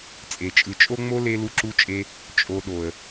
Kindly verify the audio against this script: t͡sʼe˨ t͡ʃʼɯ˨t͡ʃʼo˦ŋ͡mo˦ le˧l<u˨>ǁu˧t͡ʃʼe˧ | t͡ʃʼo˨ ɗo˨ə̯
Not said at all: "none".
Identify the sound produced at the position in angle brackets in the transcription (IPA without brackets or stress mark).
u˧